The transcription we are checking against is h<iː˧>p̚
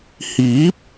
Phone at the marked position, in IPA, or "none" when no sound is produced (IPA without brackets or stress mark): iː˨˥